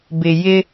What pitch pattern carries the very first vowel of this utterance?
low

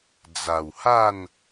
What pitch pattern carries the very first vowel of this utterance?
low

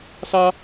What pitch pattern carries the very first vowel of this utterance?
high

